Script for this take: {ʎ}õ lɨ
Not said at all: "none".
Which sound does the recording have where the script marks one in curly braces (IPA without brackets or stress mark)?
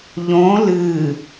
ʎ